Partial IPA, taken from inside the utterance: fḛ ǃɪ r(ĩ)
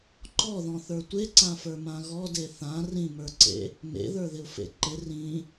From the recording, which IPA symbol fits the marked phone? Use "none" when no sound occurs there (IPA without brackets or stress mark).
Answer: ĩ